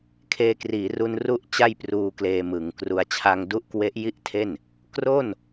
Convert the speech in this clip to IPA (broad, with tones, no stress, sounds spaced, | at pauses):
kʰ eː˧ k r iː˩˦ r u˧ n r u˦˥ ʔ t͡ɕ a˥˩ j p r uː˧ k l eː˧ m ɯ˩˦ ŋ k r u˧ a̯ t͡ɕʰ a˧ ŋ d u˦˥ ʔ k w e˦˥ ʔ j i˥˩ ʔ tʰ e˥˩ n | k r o˥˩ n